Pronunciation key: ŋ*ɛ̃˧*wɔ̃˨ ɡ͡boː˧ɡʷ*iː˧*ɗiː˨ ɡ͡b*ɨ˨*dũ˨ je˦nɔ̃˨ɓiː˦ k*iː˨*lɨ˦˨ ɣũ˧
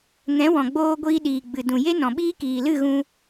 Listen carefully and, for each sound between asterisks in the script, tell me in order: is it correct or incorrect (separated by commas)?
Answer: incorrect, correct, correct, correct